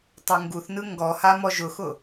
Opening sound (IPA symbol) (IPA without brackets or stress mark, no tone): tˤ